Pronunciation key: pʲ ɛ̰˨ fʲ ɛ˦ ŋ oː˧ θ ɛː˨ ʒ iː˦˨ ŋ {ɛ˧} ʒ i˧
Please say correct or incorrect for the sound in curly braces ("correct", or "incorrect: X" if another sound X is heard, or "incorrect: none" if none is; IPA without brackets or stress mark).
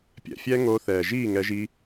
correct